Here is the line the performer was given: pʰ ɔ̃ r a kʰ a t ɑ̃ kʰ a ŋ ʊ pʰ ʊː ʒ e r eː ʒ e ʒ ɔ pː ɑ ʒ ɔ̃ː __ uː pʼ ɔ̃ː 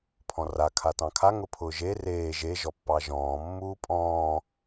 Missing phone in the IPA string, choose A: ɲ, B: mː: B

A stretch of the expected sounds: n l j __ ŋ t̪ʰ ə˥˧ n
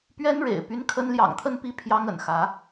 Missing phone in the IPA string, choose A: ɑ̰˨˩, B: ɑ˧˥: A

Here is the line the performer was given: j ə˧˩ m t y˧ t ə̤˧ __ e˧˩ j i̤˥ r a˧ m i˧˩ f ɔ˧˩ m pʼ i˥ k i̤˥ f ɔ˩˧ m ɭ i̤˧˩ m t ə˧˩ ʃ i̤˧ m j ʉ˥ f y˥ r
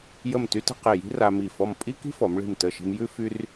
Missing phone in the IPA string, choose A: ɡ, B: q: B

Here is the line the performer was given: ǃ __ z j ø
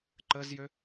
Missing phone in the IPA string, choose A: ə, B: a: A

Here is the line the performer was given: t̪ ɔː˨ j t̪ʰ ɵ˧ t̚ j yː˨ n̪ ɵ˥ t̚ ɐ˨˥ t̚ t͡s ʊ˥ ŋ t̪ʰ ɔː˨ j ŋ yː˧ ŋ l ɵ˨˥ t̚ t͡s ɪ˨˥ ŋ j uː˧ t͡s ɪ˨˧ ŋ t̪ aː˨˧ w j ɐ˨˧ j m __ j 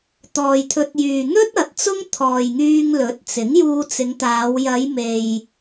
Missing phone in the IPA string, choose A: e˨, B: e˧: A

